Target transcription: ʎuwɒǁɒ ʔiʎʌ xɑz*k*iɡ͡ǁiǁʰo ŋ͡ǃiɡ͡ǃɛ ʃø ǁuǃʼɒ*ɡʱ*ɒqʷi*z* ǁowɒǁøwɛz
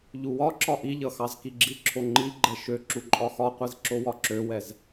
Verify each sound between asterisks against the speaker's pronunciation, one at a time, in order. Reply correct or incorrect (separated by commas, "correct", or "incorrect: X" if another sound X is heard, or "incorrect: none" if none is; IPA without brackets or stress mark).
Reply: correct, incorrect: x, correct